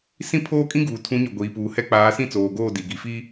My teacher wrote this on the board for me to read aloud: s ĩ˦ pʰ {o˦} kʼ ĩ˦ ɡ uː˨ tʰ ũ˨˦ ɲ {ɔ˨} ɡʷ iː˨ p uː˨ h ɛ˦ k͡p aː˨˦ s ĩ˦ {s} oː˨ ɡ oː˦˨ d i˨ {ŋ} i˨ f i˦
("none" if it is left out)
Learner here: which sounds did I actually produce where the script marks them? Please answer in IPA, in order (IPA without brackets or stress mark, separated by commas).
oː˦, ɔ˨, t͡s, ɡ